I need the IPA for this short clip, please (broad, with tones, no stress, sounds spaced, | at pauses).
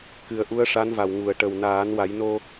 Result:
k ɨ˨˩ ə̯ ʔ u˧˥ ə̯ ʂ a˧˥ n v a˨˩ w ŋ u˨˩ ə̯ ʈ ə˨˩ w n aː˨˩˦ n w a˨˩˦ j n o˧